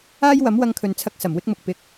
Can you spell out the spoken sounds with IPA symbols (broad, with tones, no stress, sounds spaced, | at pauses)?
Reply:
aː˥ j w ɐ˨˥ m w ɐ˧ ŋ kʰ ɵ˨ n t͡sʰ ɐ˧ k̚ s ɐ˨˩ m w ɪ˥ k̚ m ʊ˨ k̚ p ɪ˧ k̚